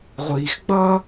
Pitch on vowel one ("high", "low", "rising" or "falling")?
low